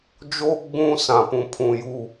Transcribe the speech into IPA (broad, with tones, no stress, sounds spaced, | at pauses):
d͡ʒ oː˦ ɡ͡b ũ˦ s ã˨ p ũ˨ pʰ ũ˨ j u˨